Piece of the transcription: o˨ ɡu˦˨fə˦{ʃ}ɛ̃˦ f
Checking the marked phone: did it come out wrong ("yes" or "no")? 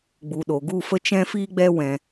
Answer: yes